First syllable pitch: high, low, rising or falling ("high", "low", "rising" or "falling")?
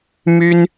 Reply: high